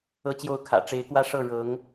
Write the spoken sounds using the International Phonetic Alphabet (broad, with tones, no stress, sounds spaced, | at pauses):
ɤ˥˧ t͡ɕ j o˥˩ ʊ̯ kʰ ä̰˨˩ ʈ͡ʂ e˧˥ ɪ̯ k w ä˥˧ ʂ ɤ˥˩ ɻ ɤ˧˥ ŋ